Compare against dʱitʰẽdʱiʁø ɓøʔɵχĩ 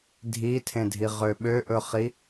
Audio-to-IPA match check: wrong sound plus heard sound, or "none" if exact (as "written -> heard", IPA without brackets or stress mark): ĩ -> i